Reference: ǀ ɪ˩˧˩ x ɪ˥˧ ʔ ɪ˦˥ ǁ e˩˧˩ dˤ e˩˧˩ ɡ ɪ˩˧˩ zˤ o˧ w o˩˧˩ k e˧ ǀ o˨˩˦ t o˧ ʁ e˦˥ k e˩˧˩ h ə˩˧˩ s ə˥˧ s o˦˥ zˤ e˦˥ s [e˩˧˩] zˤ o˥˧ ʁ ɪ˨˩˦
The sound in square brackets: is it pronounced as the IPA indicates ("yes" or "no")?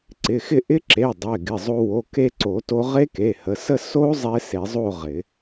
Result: no